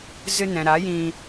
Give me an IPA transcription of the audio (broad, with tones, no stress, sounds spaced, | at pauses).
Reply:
z ɨ˧ n ɛ̃˨ ɾ a˨˦ j ĩ˧